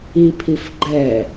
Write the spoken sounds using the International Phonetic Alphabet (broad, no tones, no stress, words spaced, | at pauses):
i pʰifɡ͡ǃɛ